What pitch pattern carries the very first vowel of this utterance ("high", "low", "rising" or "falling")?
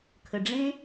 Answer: low